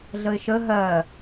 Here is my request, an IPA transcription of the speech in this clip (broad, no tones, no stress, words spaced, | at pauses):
ɮəɪ̯ʃə ɦɜ